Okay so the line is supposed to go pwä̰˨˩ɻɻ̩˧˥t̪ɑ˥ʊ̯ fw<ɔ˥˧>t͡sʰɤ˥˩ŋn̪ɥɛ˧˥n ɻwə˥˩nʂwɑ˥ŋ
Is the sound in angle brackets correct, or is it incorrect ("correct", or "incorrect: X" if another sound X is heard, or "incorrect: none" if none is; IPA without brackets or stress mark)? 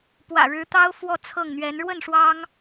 correct